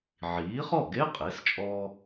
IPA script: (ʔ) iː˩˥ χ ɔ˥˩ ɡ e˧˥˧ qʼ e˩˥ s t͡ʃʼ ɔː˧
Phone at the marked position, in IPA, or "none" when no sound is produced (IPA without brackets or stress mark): ʕ